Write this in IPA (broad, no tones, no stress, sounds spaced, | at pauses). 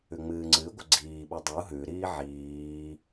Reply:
ʉ ŋ͡m ɨː ŋ͡ǀ ɨ ɡʷ ə ɡ͡ǀ iː ɓ u dˤ u ɦ ʉ ɾ iː ʕ iː